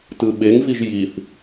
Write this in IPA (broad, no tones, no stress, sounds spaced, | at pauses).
t ɯ ɓ e ŋ v i ʒ j i θ